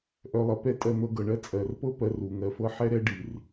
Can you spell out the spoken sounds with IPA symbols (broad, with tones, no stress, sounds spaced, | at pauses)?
ʔ œ˨ lˠ ɤ˨ p ɛ˧ tʼ ɜ˧ n̪ ɤ˧ ɡ ɤ˨ ɳ ɜ˦ t͡sʼ ɜ˨ r p ɤ˦ p ɜ˧ r u˨ ŋ ɜ˧ f ɤ˦ ħ ɛ˦ ɾ ɛ˦ ɖ i˨ r